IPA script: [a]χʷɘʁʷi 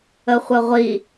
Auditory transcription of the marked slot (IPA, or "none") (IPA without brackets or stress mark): ə